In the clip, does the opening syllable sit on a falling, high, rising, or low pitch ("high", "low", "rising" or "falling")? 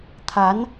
rising